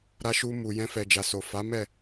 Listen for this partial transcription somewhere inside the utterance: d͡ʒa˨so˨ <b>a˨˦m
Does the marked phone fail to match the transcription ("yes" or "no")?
yes